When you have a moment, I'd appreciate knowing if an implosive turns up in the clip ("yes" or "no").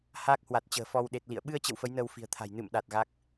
yes